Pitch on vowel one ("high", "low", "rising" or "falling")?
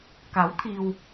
rising